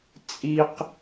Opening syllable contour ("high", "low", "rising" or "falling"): high